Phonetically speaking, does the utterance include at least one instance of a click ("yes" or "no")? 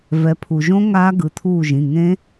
no